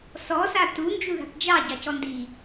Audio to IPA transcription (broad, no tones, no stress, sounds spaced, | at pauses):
s ɔ s a t u n d͡ʒ u ð a̤ p d͡ʒ ɑ ɟ ɑ c ɔ n d i